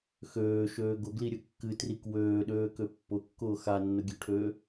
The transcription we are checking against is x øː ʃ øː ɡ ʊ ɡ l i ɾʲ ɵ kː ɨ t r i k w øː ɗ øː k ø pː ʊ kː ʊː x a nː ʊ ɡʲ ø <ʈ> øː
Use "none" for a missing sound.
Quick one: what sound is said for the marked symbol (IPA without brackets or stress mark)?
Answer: ʈʰ